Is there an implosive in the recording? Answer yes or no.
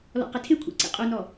no